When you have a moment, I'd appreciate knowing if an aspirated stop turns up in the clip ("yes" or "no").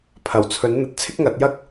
yes